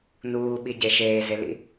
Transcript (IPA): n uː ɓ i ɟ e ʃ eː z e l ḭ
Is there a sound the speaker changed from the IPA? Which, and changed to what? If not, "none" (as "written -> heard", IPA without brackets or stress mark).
none